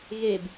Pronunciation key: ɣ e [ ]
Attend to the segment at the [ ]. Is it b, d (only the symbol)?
b